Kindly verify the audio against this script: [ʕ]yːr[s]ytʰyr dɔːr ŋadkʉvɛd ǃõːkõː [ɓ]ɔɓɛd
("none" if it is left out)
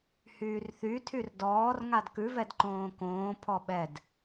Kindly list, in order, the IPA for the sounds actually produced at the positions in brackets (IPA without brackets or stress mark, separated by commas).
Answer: h, θ, pʰ